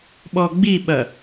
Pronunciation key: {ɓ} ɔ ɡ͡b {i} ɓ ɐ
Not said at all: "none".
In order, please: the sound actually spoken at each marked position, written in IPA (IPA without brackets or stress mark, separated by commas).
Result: ɓ, i